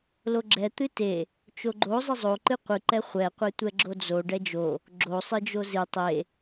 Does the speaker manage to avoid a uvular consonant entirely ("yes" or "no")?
no